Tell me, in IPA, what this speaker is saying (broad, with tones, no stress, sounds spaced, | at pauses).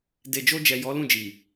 d e˨ d͡ʒ o˧ d͡ʒ ɛ˨ j ɔ˨˦ l ũ˦˨ d͡ʒ i˨